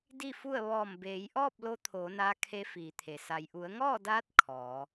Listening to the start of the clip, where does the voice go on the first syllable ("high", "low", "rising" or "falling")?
falling